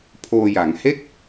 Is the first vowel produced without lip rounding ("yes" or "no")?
no